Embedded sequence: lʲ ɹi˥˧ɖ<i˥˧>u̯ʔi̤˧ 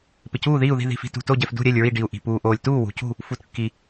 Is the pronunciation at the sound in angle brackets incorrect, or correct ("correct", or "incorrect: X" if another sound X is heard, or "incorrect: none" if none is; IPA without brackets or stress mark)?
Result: incorrect: i˧